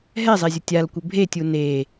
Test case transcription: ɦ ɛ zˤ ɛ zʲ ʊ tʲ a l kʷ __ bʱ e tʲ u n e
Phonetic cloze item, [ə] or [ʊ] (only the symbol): ə